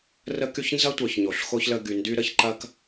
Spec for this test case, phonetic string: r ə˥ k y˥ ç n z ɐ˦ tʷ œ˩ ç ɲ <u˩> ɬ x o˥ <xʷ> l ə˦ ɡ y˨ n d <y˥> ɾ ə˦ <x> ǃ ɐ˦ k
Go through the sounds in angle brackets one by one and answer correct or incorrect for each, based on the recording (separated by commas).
incorrect, incorrect, correct, incorrect